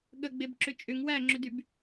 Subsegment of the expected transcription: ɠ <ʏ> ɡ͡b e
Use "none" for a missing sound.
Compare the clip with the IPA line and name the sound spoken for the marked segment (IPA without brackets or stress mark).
ə